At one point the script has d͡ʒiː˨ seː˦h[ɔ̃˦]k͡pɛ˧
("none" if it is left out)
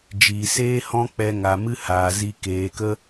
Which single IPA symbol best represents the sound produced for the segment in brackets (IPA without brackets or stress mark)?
ɔ̃˦